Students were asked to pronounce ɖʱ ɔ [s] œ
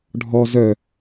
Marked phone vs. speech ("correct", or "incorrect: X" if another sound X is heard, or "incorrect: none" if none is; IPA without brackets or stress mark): incorrect: z